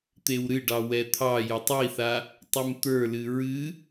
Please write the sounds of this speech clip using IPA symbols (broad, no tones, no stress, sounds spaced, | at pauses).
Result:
t̪ e w ɾ ɨ ɖ ɑ w ɛ t̪ʰ ɑ j o tˤ i θ a | tˤ ɨ m t̪ ə˞ l ɨ ɹ ɨ